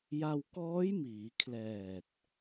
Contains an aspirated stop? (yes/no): yes